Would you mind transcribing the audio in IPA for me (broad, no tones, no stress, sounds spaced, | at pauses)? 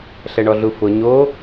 ɬ ɛ ɳ ɔ ɮ u f ʊ ɲ o